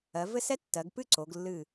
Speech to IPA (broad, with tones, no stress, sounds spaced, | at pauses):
ɜ˩˧ v ɘ˥˧ s ɛ˥ tː ɜ˩˧ ɡ p ɨ˥˧ ǀ o˩˧ ɡ lː ɨ˧˩